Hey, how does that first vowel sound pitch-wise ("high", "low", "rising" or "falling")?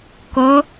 rising